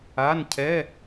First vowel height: low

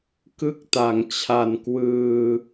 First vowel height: high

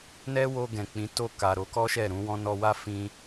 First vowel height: mid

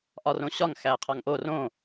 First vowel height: low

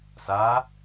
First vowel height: low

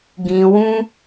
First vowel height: high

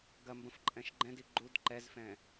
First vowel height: low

